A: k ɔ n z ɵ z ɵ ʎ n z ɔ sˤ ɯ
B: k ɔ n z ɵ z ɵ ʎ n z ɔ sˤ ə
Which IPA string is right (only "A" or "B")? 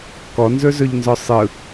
A